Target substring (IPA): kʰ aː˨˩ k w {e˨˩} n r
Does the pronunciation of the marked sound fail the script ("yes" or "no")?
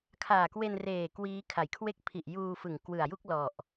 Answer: yes